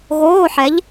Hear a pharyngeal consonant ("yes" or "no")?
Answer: yes